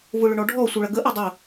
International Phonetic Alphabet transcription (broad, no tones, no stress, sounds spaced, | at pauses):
v ʊ ɭ ʏ ɳ ɔ ɖʱ ɔ sʷ œ ɭ ɐ ɡ ə ʔ œ dˤ ʊ